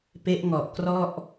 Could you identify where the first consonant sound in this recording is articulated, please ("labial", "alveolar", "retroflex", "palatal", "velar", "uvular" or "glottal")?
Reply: labial